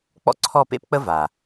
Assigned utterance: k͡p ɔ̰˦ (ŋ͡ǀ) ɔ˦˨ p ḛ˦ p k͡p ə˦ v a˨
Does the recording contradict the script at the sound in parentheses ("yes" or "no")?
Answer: yes